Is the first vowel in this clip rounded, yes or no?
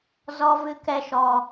yes